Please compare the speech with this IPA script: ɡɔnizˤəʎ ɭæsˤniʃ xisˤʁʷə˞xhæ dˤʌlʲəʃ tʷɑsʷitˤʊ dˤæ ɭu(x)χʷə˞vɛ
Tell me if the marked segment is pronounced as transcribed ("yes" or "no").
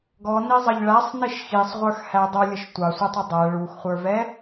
yes